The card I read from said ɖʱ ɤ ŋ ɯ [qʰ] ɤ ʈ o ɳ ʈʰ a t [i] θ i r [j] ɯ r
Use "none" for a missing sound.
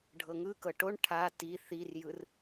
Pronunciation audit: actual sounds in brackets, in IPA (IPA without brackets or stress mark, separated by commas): k, i, j